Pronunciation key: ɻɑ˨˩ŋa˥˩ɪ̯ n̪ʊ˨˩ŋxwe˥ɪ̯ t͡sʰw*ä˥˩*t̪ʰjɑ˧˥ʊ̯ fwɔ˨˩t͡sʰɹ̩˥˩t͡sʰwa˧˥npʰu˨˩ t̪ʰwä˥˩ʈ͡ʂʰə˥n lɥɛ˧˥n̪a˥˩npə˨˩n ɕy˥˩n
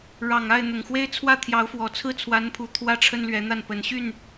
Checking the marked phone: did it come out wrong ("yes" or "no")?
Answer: no